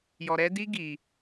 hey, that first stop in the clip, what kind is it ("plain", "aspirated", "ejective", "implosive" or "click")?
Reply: plain